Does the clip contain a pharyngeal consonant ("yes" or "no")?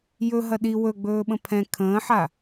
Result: yes